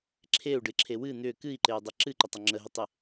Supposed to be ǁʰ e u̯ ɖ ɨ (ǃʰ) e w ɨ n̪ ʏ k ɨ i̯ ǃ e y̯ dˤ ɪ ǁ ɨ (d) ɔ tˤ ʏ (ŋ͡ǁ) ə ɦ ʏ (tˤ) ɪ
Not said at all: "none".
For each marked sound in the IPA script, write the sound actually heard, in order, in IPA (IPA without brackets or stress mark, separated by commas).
ǁʰ, ǃ, ŋ͡ǁ, tˤ